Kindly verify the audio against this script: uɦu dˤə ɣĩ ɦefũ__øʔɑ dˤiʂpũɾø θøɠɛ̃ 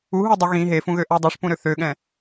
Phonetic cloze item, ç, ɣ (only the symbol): ɣ